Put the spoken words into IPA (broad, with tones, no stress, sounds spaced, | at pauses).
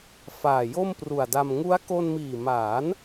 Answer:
f aː˨˩ j o˥˩ m p r u˨˩ a̯ d a˧ m ŋ u˦˥ a̯ k o˧ n m iː˨˩ m aː˩˦ n